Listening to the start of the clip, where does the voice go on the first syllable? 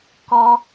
high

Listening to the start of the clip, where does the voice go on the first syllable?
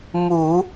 low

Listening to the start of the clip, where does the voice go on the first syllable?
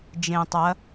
low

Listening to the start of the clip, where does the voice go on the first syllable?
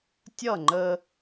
falling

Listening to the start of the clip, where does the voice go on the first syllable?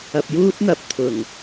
low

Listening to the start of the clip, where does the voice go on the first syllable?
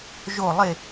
falling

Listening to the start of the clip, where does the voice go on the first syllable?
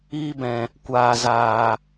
high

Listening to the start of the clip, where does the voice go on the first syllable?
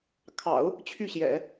low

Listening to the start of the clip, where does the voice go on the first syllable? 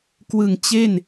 low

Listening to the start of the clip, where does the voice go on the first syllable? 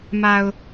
low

